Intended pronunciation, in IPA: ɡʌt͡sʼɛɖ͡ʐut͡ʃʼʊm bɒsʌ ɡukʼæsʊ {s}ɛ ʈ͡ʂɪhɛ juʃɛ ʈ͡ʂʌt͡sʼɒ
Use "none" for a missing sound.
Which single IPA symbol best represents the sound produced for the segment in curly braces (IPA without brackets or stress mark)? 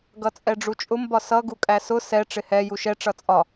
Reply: s